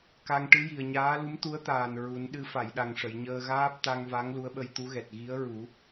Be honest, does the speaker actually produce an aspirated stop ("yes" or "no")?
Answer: no